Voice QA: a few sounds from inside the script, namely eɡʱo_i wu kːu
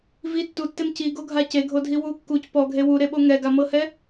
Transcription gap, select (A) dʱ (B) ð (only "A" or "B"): A